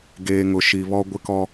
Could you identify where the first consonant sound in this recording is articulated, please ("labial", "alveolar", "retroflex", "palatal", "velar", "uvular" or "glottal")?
velar